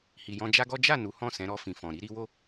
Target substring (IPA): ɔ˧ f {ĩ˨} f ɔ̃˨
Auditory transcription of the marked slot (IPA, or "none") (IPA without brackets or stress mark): ĩ˨